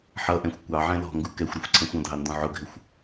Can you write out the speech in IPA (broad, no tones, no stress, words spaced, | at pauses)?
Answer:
ħʌʔɛ̃xʷ kʷɑʕɛ̃ lɔ̤ŋɡu kɛxʷɾʌxʷ ǀʰɛ̃xʷɔ̃dʱɑ ndɔ̃ʕʊɡʱɪxʷ